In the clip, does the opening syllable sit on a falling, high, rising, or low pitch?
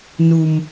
low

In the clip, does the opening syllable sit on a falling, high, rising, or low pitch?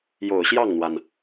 low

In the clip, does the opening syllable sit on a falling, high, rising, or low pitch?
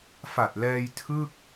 low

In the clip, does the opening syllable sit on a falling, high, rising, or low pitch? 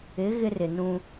rising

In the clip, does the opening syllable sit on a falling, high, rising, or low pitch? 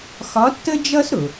rising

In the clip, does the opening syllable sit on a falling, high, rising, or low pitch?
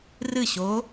falling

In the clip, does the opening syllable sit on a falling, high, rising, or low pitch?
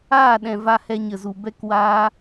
falling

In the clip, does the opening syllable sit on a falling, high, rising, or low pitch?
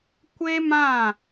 high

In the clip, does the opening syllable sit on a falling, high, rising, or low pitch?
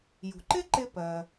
low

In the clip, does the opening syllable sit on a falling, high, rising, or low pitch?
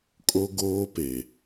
high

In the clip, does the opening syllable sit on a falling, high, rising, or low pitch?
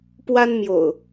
high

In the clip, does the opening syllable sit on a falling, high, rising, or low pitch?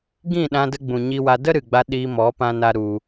falling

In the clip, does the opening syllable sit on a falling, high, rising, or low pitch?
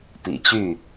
low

